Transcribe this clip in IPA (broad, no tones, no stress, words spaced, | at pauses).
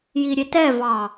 jiɾʲetɛvɑ